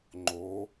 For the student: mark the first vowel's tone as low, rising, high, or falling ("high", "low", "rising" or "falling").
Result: rising